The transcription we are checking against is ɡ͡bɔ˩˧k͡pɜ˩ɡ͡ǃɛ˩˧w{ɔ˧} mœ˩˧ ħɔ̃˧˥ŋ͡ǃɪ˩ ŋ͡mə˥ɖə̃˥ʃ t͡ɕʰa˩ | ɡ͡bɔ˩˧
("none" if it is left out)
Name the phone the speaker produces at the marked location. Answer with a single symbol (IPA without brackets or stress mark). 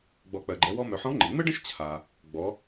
ɔ˧